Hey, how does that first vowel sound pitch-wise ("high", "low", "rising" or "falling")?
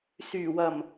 low